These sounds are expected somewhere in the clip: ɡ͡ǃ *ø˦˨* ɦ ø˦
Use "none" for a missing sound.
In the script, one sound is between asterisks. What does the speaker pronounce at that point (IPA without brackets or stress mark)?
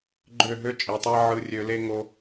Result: ø˦˨